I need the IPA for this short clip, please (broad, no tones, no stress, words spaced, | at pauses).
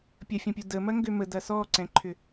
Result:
pʲəfʲɔ̃pʲu də mɐŋɡømə dɐsɔǀɛ̃ǃʰʏ